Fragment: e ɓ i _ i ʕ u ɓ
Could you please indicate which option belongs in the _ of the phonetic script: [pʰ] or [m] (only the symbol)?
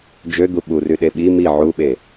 m